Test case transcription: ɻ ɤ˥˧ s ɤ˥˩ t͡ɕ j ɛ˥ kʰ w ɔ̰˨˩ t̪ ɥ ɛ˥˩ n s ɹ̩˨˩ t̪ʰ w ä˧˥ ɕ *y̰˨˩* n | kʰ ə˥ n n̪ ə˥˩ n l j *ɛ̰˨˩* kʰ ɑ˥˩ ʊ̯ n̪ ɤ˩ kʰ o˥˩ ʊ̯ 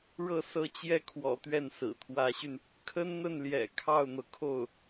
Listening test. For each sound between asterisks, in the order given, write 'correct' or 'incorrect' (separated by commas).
incorrect, correct